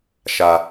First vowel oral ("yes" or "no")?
yes